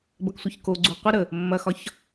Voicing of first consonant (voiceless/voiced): voiced